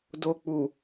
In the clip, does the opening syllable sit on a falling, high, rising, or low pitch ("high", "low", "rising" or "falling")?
low